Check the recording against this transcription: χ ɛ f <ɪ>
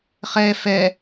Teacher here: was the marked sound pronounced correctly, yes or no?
no